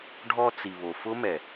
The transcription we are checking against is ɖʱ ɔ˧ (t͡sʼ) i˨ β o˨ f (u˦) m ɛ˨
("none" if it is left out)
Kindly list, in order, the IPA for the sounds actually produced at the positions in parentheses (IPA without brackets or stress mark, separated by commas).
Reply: t͡s, ʊ˦